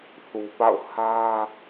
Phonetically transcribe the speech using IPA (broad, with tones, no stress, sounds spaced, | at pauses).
θ u˨ p a̰˦˨ ʊ̯ h ä˦